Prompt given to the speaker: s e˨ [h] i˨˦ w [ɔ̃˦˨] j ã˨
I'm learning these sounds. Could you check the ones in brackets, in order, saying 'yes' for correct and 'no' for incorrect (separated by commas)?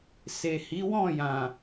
yes, yes